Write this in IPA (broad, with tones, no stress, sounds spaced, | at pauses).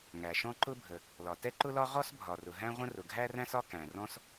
ŋ æ˩ ʃ ɔ̃˥ ǃ ʊ˥ bʱ ə˩ | l ɒ˩ t ɛ˥ ǃ ʊ˥ l ɒ˥ ʁ ɔ˥ s bʱ ɒ˩ r ʊ˩ ɦ æ̃˥ ʁʷ ə̃˥ r ʊ˩ ɡʱ æ˥ r æ̃˥ s ɒ˥ k æ̃˩ r ɔ̃˥ s